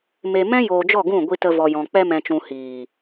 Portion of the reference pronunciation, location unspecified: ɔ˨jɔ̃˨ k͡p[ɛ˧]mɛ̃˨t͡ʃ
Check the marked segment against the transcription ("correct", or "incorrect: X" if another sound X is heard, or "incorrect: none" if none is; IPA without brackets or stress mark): correct